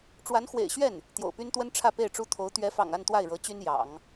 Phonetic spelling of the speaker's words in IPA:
ʈ͡ʂ w a˧˥ n x w ḛ˨˩ ɪ̯ ɕ ɥ ɛ˥˩ n | t̪ j o̰˨˩ ʊ̯ p y˥ n t̪ w ə˥ n ʈ͡ʂʰ ä˥˧ p e˥˩ ɪ̯ ʈ͡ʂ u˥ t̪ʰ o˧˥ ʊ̯ t̪ ɥ ɛ˧˥ f ɑ̰˨˩ ŋ a˥˧ n t̪ w a˥˩ ɪ̯ ɻ ɤ˧˥ t͡ɕ y˥ n j ɑ̰˨˩˦ ŋ

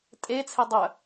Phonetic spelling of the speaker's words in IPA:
tʼ e t͡sʰ e dˤ œ

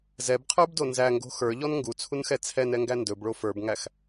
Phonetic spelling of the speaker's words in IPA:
z ɛ b qʰ ə˞ b d o n z æ ŋ ɡ o̤ x ə˞ ʎ ɔ n ŋ ɡ u t͡sʰ u n x ɛ t͡sʰ ɛ n ɛ ŋ ɡ æ n d ɵ b ɭ o f ə˞ b ŋ æ x

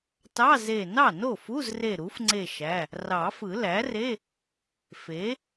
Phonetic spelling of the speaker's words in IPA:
t ɑ˧˥˧ z e˧˩ n ɑ˥˩ n o˥˩ f u˧˥˧ z r e˧˩ ɾ u˩˥ f ŋ͡ǀ e˧˩ ʃ æ˩˧˩ | r ɑ˨˩˦ f ɯ˨˩˦ l æ˩˥ r e˧˥˧ | f e˩˥

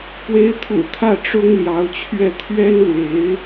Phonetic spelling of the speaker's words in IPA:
p w e˧˥ ɪ̯ t̪ʰ ṵ˨˩ t̪ʰ ä˥˩ ʈ͡ʂ ʊ˥ ŋ l j ɑ˧˥ ʊ̯ t͡ɕʰ ɥ ɛ˥˩ t̪ʰ ɥ ɛ˥ n l w e˧˥ ɪ̯

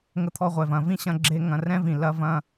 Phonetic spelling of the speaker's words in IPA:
ŋ ə˧ t̪ʰ ɔ˧ ʁʷ ɛ˩ v ɐ̃˩ v ĩ˥ ɕ ɐ̃˧ ɡ͡ǁ e˧ ŋ ɐ̃˩ r ɛ̃˥ v ĩ˩ l ɐ˧ v ɐ̃˧

